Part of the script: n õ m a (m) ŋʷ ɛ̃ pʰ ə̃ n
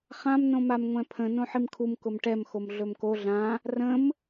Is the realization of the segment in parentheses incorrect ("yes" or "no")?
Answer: no